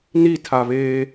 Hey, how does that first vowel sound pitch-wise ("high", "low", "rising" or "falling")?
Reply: falling